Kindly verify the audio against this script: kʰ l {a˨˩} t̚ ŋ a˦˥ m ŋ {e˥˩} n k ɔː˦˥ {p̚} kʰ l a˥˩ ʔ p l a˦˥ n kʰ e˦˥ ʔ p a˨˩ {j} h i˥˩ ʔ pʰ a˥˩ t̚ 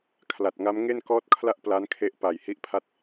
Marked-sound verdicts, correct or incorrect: correct, correct, incorrect, correct

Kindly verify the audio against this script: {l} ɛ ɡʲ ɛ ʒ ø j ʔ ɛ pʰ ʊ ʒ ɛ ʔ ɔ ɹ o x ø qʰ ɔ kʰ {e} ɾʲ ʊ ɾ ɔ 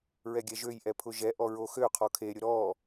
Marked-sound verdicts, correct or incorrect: incorrect, correct

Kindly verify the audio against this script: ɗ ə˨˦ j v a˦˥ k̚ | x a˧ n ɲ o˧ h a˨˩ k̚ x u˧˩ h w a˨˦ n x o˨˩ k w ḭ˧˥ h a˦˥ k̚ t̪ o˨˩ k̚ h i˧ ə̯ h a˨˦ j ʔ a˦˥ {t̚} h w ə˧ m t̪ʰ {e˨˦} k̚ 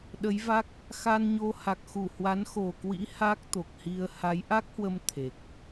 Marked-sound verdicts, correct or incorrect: incorrect, incorrect

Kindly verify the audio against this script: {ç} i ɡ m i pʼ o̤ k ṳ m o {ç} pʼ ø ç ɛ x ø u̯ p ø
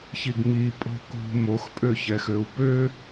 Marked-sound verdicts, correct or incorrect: correct, incorrect

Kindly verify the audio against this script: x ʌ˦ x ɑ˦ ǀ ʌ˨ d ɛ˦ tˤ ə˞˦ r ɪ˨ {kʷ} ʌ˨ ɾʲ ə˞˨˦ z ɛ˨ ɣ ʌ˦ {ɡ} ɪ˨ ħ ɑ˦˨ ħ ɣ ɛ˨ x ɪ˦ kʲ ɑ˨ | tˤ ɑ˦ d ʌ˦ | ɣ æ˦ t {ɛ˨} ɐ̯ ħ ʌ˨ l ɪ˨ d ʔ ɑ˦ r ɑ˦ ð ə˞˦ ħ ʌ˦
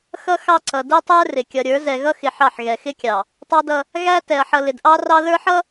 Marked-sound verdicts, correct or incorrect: incorrect, incorrect, correct

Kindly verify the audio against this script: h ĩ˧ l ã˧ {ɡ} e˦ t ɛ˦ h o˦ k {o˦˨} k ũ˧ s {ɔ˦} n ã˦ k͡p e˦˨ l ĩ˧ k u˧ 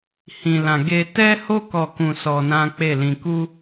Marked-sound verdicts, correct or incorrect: correct, incorrect, incorrect

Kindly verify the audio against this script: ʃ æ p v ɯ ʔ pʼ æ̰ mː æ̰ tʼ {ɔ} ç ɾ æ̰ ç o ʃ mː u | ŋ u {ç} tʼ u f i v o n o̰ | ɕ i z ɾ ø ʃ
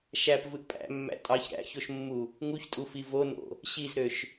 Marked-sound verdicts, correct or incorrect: incorrect, correct

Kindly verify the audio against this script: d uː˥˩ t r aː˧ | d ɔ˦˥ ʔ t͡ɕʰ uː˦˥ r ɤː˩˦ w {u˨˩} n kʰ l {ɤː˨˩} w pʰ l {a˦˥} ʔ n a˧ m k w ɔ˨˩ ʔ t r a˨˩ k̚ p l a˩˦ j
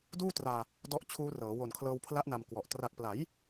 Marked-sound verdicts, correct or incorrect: incorrect, incorrect, correct

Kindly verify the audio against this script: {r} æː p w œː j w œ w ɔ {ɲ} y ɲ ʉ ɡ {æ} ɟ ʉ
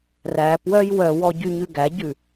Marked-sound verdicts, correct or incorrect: correct, incorrect, correct

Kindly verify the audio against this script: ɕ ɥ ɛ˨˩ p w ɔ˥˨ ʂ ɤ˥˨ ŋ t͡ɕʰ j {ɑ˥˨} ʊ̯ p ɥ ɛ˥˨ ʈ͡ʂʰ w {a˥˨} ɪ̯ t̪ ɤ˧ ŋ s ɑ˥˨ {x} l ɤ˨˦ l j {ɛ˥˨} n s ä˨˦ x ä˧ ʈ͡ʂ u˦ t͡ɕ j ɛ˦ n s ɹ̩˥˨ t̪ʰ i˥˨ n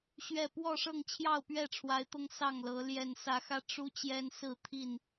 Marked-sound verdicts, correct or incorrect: correct, incorrect, incorrect, incorrect

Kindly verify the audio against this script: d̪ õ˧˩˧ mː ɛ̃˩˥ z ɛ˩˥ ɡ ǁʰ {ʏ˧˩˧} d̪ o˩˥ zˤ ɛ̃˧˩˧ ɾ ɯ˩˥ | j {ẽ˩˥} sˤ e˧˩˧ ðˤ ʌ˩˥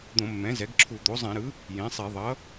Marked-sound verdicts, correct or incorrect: incorrect, correct

